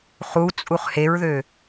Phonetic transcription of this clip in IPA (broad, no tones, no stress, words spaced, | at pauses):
χut͡sʼuχ heɹðø